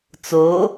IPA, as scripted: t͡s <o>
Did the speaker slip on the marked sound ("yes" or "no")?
no